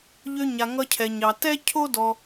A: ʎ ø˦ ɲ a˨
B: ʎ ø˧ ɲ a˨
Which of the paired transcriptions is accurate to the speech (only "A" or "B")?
B